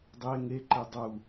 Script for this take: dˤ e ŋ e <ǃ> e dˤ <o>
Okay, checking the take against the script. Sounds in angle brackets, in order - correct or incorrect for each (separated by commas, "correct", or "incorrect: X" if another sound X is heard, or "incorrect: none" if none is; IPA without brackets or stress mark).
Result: correct, incorrect: u